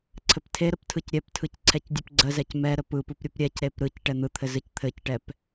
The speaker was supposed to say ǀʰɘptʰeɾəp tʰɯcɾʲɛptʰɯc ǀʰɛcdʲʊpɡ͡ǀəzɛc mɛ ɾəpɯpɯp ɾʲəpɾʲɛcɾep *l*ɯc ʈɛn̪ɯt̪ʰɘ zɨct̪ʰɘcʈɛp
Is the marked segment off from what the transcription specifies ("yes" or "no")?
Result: yes